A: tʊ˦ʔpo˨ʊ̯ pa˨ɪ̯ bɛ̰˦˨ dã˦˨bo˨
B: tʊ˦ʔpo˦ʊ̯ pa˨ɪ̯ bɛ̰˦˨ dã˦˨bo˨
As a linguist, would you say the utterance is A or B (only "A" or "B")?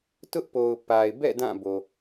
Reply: A